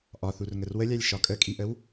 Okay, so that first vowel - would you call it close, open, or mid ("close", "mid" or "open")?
open